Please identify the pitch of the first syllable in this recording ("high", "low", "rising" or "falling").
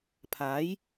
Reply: rising